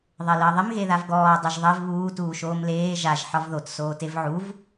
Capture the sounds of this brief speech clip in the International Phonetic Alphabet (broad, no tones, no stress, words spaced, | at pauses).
ðˤeləːðˤɪm ɣeðavɡɔː dˤɪʒðˤev βuː tuːʃoːmleː ʒaʒ ħɒvðot soːtevʕuv